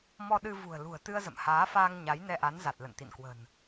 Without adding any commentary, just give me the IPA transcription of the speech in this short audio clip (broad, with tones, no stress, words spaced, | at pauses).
mɔ˧ɗɨ˧ vṳ˨˩ə̯lṳ˨˩ə̯t̪ɨ˧ə̯zə̰˧˨m haː˨˦faː˧ŋ ɲa˨˦jnɛ˧ʔa˨˦n za˨˩t̚ lə̰˧˨nt̪ḭ˧˨nkwə̤˨˩n